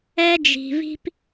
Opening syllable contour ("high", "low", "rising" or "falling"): high